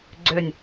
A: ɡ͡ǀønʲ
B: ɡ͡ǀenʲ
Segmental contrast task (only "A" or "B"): A